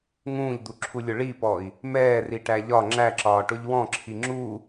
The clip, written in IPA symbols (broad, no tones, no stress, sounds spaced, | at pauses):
ŋ ũː ʎ d̪ u ǁʰ u lʲ ʊ ɭ i p ɔ i̯ | m ɛː r i ʈ æ ʎ ɒ ŋ͡ǁ æ ǁ ɒː ʈ ʊ ʎ w ɔ̃ ǁʰ i ŋ͡ǁ u